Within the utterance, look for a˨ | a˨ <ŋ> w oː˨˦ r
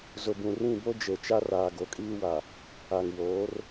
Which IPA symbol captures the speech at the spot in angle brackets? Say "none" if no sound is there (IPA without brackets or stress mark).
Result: ŋ